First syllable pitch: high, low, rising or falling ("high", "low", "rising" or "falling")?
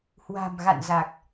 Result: low